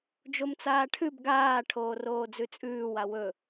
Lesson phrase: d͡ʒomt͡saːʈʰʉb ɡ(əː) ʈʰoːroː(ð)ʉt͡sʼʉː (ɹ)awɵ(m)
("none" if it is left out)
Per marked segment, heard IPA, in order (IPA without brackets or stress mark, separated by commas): aː, d͡z, w, none